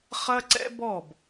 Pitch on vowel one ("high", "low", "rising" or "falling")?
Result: high